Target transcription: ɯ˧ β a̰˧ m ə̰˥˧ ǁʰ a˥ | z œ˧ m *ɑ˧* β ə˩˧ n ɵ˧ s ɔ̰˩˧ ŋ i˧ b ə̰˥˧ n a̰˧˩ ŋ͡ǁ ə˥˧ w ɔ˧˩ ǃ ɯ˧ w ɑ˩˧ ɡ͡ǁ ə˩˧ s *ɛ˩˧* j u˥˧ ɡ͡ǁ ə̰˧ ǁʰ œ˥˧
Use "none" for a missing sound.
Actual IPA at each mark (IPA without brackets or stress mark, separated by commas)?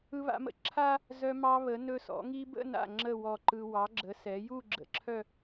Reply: ɑ˧, ɛ˩˧